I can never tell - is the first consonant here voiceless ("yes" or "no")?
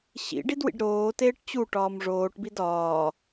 yes